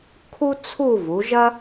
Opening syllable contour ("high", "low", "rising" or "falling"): high